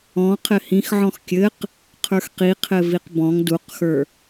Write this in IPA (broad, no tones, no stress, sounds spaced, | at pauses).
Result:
ɔ̃ qʰ ɘ h ĩ x ʕ ɔ̃ x kʲ ɘ q | qʰ ə˞ x q i qʰ ɘ v i q b ɔ̃ ŋ d u q x ə˞